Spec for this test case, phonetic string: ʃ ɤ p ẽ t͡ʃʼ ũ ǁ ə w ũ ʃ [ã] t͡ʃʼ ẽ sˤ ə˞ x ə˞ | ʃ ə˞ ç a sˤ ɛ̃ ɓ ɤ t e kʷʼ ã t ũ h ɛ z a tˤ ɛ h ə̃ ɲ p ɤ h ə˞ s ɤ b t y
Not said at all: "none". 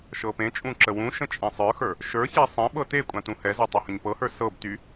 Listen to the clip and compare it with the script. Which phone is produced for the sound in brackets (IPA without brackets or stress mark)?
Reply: ə̃